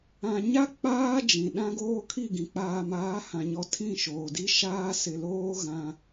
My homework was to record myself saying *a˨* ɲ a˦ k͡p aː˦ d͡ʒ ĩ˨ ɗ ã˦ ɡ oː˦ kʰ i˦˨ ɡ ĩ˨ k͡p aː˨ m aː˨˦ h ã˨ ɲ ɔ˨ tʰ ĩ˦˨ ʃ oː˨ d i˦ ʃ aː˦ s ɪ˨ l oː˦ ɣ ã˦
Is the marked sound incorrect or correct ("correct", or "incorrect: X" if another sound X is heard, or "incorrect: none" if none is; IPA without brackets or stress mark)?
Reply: incorrect: ã˨